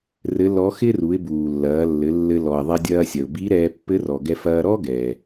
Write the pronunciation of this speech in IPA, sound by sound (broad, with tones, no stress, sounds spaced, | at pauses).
r ɘ˧˥ l ɔ˧˥ x ɪ˥ r u˩˧ ɪ̯ b uː˩ lː ɐː˩˧ lː ɘ˩˧ lː ɘ˧ l ɔ˩ ɪ̯ ðˤ e˧ dʲ ɐː˧ sʲ ɐ˩ ʊ̯ b i˧˥ ɾ ɛː˧ pː ɘ˧˥ r ɔ˩ ɡ ɛ˧ f ɐː˧ ɾ ɔ˥ ɡ ɛː˩